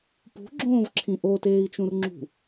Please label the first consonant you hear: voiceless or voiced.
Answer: voiceless